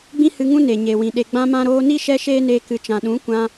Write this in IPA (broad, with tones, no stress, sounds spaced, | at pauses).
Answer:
ɡ͡b ĩ˦ h ɨ˧ ŋ ũ˦ n e˨ ɲ e˨ w ĩ˨ ɗ e˨ ɡ͡b ã˧ m ã˧ ɾ oː˧ n i˦ ʃ ɛ˦ ʃ eː˦ n eː˧ k ɨ˨ t͡ʃ ã˨ ɗ ũ˨˦ kʷ ã˧